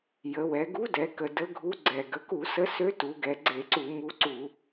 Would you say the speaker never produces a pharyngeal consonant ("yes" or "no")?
yes